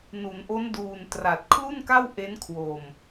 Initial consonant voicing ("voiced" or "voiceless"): voiced